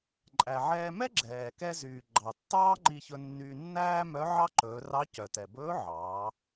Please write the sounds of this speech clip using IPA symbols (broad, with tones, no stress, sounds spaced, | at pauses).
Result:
ǃʼ æ˩ ʕ ɛː˧ m ɛ˥ ɡ͡ǁ ɛː˩ k ɛ˧ z yː˩ ɡ͡ǃ ɑ˩ tː ɑː˥ ŋ͡ǃ i˧ ç ɵ˧ nː yː˧ nː æː˥ m œ˧˥ ʕ ɑ˥ ǃ ɵː˩˧ r ɑ˧˥ c œ˩ t ɛ˩ b ɵː˧˥ ʕ ɑː˩˧